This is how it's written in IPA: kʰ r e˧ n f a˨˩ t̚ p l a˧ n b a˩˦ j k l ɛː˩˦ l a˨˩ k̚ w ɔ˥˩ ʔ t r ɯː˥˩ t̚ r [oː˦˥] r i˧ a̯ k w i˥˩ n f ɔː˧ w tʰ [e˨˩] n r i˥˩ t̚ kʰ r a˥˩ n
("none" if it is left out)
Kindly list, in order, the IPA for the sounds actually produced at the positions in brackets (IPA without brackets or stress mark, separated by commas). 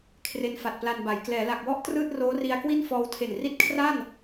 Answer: oː˦˥, e˨˩